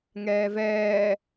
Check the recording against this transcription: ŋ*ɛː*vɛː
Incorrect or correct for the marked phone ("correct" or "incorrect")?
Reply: correct